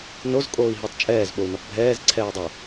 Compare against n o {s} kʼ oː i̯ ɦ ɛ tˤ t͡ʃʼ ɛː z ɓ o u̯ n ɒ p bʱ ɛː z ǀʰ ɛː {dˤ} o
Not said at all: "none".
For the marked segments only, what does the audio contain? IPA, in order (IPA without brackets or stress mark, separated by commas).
z, dˤ